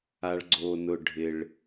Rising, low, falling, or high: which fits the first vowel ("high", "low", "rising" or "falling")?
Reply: low